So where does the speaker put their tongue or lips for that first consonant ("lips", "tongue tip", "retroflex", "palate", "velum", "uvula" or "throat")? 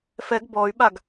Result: lips